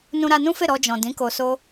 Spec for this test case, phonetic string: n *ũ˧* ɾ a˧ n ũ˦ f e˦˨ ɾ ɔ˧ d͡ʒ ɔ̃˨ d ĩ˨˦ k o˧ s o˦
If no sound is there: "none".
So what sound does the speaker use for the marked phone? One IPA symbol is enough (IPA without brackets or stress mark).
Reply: ũ˧